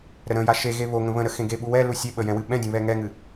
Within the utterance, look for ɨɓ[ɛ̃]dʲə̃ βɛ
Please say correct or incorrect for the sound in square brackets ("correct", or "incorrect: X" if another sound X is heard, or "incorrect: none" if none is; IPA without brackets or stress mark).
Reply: correct